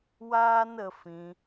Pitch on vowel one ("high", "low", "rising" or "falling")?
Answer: high